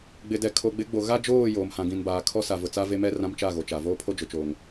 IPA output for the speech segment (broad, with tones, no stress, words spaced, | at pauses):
ɡ͡bɪ˨dɛ˨ kʰo˨ɡ͡bɪ˨˦ɡ͡bo˨ ɣa˦d͡ʒoː˦˨ joː˨mhã˨ɡĩ˨nbaː˨ kʰɔ˦sa˨vʊ˨t͡sa˦ ve˦mɛ˦ rã˦mt͡ʃa˦˨ɣo˨t͡ʃa˨ voː˦pʰo˦d͡ʒʊ˨t͡ʃoː˨ŋ